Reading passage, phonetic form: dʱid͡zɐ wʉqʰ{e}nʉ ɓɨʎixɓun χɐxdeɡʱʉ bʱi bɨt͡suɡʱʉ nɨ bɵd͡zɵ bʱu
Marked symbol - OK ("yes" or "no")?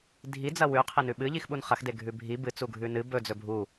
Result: yes